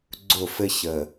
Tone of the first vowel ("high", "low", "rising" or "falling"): falling